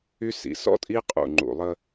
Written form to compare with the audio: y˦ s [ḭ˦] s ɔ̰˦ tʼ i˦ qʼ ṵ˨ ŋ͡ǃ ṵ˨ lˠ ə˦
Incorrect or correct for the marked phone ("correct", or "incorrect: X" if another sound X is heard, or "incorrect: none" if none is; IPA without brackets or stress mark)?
incorrect: ḭ˨˦